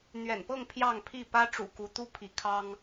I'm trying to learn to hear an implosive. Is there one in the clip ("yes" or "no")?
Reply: no